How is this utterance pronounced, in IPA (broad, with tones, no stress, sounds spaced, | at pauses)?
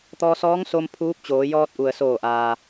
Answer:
t̪ ɔː˧ s ɔː˧˥ ŋ s o˧ m pʰ uː˧˥ p̚ t͡ɕ oː˩˧ j ɔː˧ t̚ ʔ u˩ ə̯ s oː˧˩ ʔ aː˩